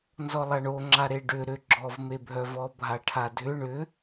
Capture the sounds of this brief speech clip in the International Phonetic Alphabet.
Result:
n z ɔ lˠ a ɳ o ŋ͡ǁ a ɾ e ɖ ʏ ɾ ʏ ɡ͡ǁ ɔ v m e bʱ œ v ɔ bʱ a ʈʰ a dʱ ʏ ɳ ʏ

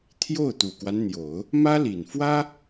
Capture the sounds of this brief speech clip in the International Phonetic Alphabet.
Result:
t̪ʰ j o˥˩ ʊ̯ t̪ u˨˩ k w a˦ n n̪ j o˨˩˦ ʊ̯ | m ä˥ l i˨˩ n f w ä˥

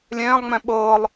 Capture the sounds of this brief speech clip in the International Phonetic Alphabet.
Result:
lʲ ɛ̃ː lˠ ŋ͡m ɛ̃ ɓ ɤː lˠ

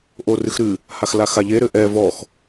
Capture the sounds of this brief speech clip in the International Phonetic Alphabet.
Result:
ʔ o r ɨ x ɾ ɨ | h a x l a x a ʎ e ɾ ɘ ʔ ɛ v ɔ x

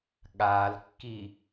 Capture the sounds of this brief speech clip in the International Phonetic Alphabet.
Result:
ɠ a l kː i

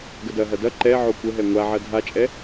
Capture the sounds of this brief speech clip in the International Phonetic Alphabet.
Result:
ɡ ə d ɐ ɦ ɐ d ɐ ǃ ɛ ʕ o kʷ ə ɦ ɛ ŋʷ a ʕ ɐ dʱ a t͡ʃʼ ɛ

